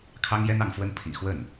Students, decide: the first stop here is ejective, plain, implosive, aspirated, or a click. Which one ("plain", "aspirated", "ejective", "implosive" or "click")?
aspirated